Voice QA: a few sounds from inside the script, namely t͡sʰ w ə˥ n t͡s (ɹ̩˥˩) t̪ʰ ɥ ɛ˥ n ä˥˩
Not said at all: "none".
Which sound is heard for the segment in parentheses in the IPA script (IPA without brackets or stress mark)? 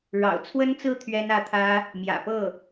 ɹ̩˥˩